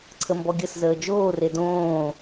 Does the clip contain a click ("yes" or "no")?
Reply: yes